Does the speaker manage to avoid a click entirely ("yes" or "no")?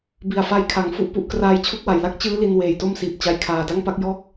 yes